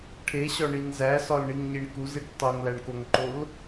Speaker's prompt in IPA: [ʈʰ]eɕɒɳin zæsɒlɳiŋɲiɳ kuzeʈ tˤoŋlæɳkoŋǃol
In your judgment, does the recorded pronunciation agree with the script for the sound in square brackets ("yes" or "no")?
yes